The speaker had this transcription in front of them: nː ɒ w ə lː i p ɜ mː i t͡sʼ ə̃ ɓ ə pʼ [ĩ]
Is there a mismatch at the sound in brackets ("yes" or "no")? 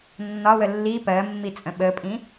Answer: no